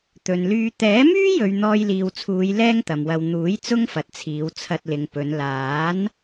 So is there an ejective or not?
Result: no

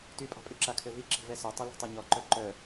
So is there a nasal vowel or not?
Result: no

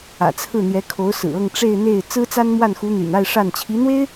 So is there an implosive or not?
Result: no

